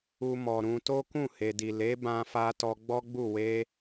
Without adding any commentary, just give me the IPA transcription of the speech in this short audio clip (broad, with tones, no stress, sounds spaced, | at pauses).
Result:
u˧ m ɔ˨ ɾ ũ˧ t o˦ k ũ˦˨ h e˨ d i˨ l e˨˦ b ã˧ f a˧ t ɔ˧ ɡ͡b ɔ˦ ɡ͡b u˦˨ w e˧